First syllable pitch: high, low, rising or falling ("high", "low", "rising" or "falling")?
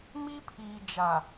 high